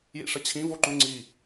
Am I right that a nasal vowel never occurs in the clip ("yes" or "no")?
no